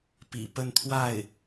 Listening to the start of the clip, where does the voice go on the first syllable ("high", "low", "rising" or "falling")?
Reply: low